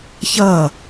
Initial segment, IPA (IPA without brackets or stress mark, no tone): ç